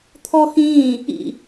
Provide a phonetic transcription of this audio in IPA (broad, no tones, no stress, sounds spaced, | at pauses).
t̪ʰ ɔ x ĩː | ḭ